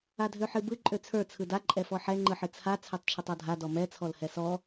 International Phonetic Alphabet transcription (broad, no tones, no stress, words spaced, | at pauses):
adʱøħɨbɯ ǃʼøt͡sʰə˞ t͡sʰɯda ǃʼɛfɔħɛ ŋ͡ǃɯħɨt͡sʰa t͡sʰøtˤt͡ʃʰɯtˤɔdʱa dɔmɛ t͡sʰɔlhɛsɔ